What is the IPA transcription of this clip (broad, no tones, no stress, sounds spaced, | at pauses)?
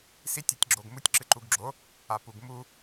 s i tʲ ɔ tʲ ɡ͡ǁ o ɡ m u tʲ ǁ ɨ ǃ u ɡ ɡ͡ǁ o | a p u ɡ m u